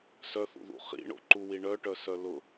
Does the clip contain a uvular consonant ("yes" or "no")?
yes